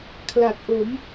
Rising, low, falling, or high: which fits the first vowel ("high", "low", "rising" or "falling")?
low